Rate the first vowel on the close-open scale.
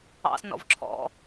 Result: open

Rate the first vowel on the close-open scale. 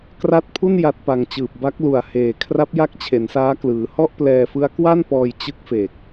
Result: open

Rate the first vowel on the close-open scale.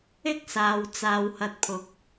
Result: close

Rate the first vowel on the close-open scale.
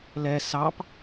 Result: mid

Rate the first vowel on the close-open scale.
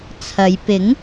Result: open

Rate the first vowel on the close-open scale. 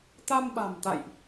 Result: open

